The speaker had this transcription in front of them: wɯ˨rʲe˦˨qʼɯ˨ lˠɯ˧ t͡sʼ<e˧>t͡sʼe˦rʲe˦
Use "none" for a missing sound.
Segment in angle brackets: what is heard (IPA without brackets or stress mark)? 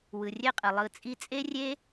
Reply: i˧